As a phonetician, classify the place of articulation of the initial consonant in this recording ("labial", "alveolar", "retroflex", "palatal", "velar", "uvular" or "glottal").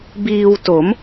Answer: labial